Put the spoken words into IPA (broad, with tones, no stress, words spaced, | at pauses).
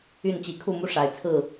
y˥˨nt͡ɕi˨˦ kʰu˥˨mu˦ʂa˨˩ɪ̯ t͡sʰɹ̩˥˨